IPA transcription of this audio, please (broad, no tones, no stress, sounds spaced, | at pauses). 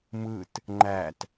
m ɯ t | ŋ͡ǃ æ t